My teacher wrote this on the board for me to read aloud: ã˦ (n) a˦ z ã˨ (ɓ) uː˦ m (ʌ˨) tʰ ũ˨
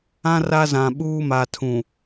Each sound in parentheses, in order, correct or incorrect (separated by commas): incorrect, correct, incorrect